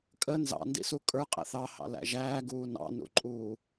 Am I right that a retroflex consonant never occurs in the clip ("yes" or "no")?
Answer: yes